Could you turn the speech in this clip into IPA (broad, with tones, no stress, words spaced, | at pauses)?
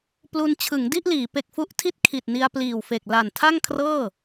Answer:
plu˧nt͡ɕʰɯ˩˦ŋdi˥˩ʔliː˩˦ pe˨˩k̚fu˦˥ʔ tʰi˦˥t̚ kʰi˨˩t̚ni˧a̯ pliː˨˩wfe˨˩k̚la˨˩n tʰa˥˩ŋkʰrɤː˥˩